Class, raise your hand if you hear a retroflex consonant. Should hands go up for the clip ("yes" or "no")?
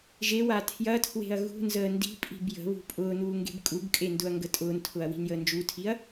no